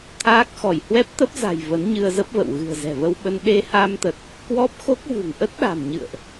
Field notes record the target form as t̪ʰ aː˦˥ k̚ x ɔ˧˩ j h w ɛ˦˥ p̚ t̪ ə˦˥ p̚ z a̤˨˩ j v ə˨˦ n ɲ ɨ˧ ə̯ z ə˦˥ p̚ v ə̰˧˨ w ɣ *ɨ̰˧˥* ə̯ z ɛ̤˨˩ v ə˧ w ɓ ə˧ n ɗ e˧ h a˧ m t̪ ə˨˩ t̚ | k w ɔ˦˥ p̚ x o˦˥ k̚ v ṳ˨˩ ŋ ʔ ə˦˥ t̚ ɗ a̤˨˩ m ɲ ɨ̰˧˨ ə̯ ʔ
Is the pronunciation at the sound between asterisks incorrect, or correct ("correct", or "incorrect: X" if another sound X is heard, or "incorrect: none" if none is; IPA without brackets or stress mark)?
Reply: incorrect: ɨ̤˨˩